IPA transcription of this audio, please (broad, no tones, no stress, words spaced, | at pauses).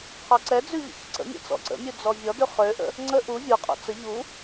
qʰɔǀɛ d͡zʉʎə̰çə̰ǀə̰ mʲɛ̰t͡sɔ̰ǀə̰mʲu d͡zɔvʲɔdʉ χøʔə̰ | ŋ͡ǀə ʔu vʲuqʼɔ̰ t͡sə ʎu